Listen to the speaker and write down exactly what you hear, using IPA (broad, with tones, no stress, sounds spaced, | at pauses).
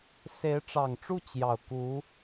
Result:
s e˧˥ ɪ̯ ʈ͡ʂ ɑ˨˩ ŋ ʈ͡ʂ u˥˩ t͡ɕ j ɑ˨˩ ʊ̯ k u˧˥